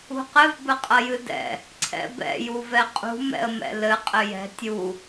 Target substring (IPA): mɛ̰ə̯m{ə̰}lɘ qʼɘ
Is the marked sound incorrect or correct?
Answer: incorrect: ɛ̰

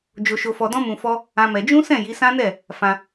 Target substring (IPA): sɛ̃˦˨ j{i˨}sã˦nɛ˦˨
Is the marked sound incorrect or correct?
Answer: incorrect: i˨˦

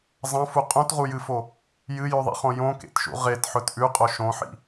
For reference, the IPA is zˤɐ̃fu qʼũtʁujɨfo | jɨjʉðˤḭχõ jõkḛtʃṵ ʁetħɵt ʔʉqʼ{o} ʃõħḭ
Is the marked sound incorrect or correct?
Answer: correct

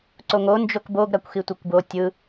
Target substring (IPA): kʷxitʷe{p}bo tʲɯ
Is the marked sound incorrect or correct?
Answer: incorrect: kʷ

